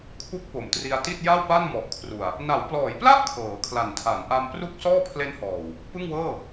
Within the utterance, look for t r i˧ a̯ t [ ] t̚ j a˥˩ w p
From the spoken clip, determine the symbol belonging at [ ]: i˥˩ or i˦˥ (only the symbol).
i˥˩